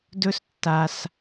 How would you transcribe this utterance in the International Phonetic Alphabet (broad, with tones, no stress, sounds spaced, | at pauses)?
d ɵ˦ s tː a˧ s